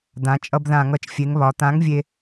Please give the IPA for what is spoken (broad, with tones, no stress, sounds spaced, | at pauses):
d̪ ã˩˧ t͡ʃʼ ʌ˧ b ð ã˧˩˧ ŋ ʌ˩˧ t͡ʃ fʲ e˩˧ ŋ β ɒ˩˧ t̪ ã˨˥ ŋ vʲ e˧